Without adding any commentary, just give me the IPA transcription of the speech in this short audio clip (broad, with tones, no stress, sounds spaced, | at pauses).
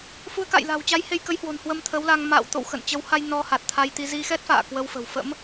f u˨˦ ə̯ k a̰ː˧˨ j l a̤˨˩ w t͡ɕ a˨˦ j h e˧ j k ə˨˦ j h w o̤˨˩ n h w ə˧ m t̪ʰ ə˨˦ w l a˧ ŋ m a̰ː˧˨ w t̪ o̰˧˨ w x ə̰˧˨ n t͡ɕ ə˨˦ w h a˧ j n ɔ˧ h a˨˩ t̚ t̪ʰ a˧ j t̪ i˧ z i˧ x ɛ˦˥ t̚ f a̰ː˧˨ k w ə˧ w f ə̤˨˩ w f ə̰˧˥ m